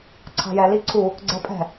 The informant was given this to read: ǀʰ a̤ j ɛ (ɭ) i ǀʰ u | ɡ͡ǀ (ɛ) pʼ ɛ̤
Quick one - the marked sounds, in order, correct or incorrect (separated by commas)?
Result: incorrect, correct